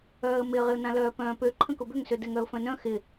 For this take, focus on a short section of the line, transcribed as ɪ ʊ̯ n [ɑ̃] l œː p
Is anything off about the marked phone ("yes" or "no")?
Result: yes